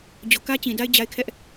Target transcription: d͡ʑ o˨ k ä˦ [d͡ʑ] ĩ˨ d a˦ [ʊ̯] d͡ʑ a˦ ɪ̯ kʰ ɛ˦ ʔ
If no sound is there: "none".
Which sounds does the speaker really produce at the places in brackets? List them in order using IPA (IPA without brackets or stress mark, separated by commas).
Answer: t͡ɕ, ɪ̯